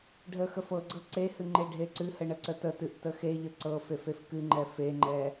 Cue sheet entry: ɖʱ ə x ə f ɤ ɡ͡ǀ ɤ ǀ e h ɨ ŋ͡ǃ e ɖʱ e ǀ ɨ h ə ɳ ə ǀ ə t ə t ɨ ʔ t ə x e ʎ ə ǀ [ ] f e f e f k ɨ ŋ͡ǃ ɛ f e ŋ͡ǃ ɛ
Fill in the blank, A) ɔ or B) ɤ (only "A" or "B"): B